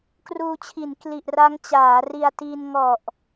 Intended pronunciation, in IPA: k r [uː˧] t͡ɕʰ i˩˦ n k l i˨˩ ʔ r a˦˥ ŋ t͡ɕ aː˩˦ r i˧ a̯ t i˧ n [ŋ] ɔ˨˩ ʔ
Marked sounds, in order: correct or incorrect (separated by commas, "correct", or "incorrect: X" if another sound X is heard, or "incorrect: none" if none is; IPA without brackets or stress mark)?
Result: correct, correct